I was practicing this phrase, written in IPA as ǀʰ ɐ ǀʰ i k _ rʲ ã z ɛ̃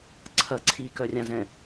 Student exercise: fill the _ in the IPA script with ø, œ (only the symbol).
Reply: œ